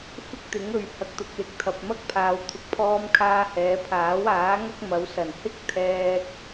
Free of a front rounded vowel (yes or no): yes